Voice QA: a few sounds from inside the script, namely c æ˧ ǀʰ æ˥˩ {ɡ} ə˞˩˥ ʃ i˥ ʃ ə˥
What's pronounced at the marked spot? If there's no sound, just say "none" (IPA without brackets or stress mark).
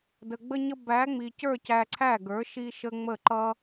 ɡ